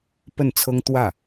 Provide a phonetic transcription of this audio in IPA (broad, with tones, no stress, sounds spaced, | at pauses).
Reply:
p ə˥˩ n t͡sʰ ɤ˥ ŋ t̪ w ä˥˩